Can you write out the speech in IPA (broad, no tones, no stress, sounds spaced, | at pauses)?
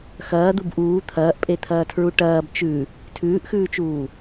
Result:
x ɐː d̪ u b ʔ uː t̪ʰ ɐː ʔ pʼ e t̪ʰ ɐː tʰ ɹ u ʈ ɐː b t͡ʃ ʉ | tʰ ʉː ʔ x ʉː t͡ʃ uː